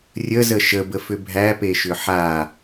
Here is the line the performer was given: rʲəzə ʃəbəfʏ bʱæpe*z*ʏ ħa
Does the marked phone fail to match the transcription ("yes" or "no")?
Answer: yes